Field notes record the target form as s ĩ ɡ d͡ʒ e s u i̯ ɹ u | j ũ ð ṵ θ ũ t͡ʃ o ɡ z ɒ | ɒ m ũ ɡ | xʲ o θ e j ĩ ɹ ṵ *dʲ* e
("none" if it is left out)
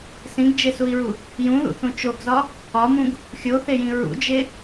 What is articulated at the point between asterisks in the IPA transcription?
d͡ʒ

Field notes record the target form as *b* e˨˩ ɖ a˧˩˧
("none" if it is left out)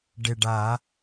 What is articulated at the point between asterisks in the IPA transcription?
ɖ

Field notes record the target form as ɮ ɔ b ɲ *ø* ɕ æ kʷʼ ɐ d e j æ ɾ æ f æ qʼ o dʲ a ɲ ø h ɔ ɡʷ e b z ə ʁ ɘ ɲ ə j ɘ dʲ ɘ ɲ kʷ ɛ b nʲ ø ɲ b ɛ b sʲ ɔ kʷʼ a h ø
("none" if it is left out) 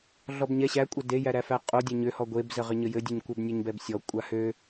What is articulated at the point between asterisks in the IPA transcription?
ɛ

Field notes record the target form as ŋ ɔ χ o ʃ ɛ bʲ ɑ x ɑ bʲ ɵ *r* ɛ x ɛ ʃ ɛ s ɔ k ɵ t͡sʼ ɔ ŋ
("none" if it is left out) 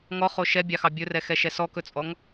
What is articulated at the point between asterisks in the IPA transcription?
r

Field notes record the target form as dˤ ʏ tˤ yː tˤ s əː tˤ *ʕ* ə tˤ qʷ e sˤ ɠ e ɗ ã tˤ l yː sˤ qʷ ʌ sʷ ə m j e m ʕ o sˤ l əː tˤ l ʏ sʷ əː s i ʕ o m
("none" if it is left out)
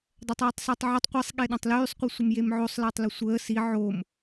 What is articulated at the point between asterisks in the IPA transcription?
ʕ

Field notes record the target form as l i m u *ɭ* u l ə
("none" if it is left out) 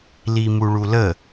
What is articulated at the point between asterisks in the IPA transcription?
ɭ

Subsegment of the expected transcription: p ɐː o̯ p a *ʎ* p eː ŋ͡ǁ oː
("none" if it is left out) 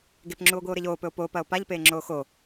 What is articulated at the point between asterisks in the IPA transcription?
ʎ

